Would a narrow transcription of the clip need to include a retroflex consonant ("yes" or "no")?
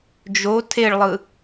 yes